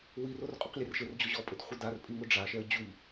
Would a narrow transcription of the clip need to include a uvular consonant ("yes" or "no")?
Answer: yes